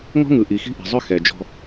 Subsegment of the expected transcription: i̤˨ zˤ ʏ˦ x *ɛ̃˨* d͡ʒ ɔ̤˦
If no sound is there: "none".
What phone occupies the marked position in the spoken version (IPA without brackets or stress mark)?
ɛ˨